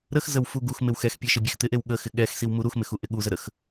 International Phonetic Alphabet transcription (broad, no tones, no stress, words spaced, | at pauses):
ɾəxzəw fuɡuxmɪw xɛxpʲe ʃɪbʲext̪ɪʔew ɠəxɪ ɠɛxsiw muɾuxmɪx uʔɪɠuzə ɾəx